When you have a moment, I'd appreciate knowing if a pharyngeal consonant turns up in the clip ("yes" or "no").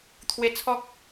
no